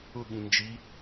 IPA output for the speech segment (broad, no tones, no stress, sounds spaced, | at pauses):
ʊ ɠ ĩ n d͡ʒ i